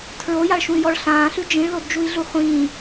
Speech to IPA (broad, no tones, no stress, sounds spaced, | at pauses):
tʰ ɹ o j a ɭ ʃ ũ y̯ j ɔ ɭ ɬ ãː ɬ ʉ d͡ʒ ĩ ɭ l o d d͡ʒ u i̯ ɮ u χʷ ĩː